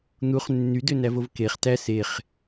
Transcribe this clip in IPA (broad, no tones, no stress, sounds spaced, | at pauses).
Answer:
n̪ u χ nː y d ø n æ v o v k e χ t æ s e χ